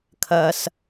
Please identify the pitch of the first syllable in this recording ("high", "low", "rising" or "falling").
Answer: low